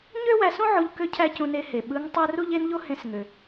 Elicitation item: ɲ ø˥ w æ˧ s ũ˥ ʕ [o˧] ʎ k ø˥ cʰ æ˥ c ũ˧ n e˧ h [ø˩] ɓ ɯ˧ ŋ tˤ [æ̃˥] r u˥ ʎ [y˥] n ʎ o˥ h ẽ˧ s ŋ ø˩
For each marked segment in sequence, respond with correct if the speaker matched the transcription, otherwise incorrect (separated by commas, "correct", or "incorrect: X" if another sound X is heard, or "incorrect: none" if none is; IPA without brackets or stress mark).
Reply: correct, incorrect: e˩, incorrect: æ˥, incorrect: e˥